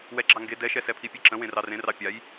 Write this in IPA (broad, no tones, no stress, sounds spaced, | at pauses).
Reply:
w ɛ ɡ͡ǁ ɑ ŋ ɡ e d ɛ ʃ ɛ s ɛ pʰ i pʲ e ǁ ə̃ w ẽ r ɑ r ẽ r ɑ pʲ a j